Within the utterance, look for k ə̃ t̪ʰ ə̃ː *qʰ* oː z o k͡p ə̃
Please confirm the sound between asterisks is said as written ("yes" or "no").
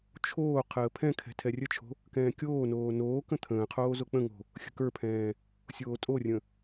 yes